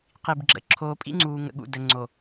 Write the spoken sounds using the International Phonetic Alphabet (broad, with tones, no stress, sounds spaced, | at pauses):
q i˨ b ɡ͡ǁ ə̰˨ ǁʰ oː˨ pʼ ḭ˦ ŋ͡ǀ uː˨ ŋ ə̰˨ ɠ ṵ˨ d ə˨ ŋ͡ǀ o˨